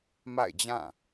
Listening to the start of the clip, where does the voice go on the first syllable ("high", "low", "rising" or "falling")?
falling